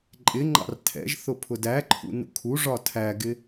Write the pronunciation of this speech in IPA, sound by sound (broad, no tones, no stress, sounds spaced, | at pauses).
ǃʼ ɪ ŋ͡ǃ ɑ̰ r tʰ ɛ̰ ʒ θ ʊ pʰ ʊ d æ ǃʰ ṵ n ṵ kʰ u ʐ ɒ tʰ æ ɡ ɪ